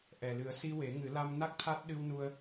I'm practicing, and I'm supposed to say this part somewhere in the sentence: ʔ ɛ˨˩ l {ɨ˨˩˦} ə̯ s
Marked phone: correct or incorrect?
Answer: correct